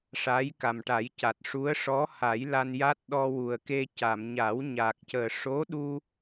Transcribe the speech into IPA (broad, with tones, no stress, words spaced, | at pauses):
ʂa˧˥jka˨˩mʈa˨˩˦jca˨˩t̚ ʂu˧˥ə̯ ʂɔ˧˥ha˨˩˦j la˧nja˦˥t̚ɗɔ˧ wu˨˩ə̯ke˧ ca˨˩˨mɲa˨˩˦wɲa˨˩k̚cəː˨˩ ʂo˧˥ɗu˧